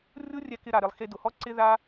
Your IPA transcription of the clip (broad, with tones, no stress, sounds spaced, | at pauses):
rʲ ʊ˦ rʲ ɛ˧ k ɪ˧ ɾ a˨ ɾ ɪ˨ lˠ x e˧ d ʊ˨ h ɔ˦ ǀ ɪ˦ ð a˦